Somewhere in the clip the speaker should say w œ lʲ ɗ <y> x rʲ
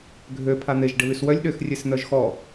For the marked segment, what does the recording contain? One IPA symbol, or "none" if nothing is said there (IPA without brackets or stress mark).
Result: ø